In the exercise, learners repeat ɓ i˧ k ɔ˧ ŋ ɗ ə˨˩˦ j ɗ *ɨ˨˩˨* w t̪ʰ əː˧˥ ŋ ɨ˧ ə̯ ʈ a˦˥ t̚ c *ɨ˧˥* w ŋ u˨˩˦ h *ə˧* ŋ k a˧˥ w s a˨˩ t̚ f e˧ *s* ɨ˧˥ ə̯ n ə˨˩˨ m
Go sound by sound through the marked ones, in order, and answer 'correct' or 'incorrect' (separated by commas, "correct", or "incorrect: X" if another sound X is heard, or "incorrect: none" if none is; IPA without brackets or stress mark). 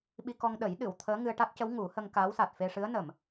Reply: correct, incorrect: ə˧˥, correct, incorrect: ʂ